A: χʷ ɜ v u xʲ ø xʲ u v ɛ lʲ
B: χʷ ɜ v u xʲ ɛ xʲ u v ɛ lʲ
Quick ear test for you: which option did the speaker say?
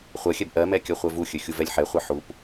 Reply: A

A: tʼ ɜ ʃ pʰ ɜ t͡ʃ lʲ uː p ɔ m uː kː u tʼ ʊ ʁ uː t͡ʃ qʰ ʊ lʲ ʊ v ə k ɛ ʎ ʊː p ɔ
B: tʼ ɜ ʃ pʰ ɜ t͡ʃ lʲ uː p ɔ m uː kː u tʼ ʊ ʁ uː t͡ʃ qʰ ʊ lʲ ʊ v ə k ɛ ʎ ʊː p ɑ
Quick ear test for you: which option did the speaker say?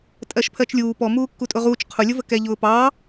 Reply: B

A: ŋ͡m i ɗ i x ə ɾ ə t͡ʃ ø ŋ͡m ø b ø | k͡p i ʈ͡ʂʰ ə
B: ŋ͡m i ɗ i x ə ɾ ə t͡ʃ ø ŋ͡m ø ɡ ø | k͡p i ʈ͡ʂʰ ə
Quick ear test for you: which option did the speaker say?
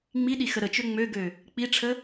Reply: B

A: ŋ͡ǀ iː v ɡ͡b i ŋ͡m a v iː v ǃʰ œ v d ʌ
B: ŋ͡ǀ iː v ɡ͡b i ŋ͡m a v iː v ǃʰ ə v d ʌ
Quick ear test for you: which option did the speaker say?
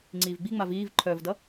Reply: A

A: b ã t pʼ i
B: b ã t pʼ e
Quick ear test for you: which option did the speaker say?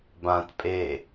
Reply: B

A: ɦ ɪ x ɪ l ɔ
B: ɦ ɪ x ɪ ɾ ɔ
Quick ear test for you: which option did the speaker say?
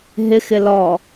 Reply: A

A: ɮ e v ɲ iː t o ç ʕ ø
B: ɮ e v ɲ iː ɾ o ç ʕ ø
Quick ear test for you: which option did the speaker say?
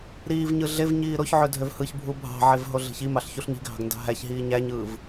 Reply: B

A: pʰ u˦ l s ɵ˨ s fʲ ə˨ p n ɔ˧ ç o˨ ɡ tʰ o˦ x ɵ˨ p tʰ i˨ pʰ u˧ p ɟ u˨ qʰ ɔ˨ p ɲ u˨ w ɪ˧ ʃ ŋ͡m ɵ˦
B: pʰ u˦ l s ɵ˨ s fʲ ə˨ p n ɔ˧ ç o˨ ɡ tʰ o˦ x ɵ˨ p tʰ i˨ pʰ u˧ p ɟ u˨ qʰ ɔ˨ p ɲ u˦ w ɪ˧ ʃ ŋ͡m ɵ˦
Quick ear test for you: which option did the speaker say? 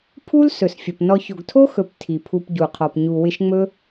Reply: A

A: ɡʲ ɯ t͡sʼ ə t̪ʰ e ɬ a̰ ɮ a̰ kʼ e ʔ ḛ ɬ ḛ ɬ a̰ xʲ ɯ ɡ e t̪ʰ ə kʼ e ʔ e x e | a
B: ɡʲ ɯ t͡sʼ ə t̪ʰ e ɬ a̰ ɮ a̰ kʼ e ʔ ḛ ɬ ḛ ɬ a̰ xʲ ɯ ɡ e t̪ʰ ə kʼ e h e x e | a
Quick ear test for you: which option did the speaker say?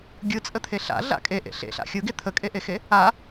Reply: A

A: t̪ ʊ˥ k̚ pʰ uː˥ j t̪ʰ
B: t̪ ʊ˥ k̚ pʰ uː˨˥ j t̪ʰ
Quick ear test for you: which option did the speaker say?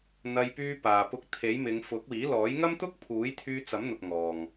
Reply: B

